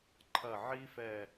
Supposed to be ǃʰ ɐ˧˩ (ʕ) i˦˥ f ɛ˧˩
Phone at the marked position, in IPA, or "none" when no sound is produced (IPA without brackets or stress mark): ʕ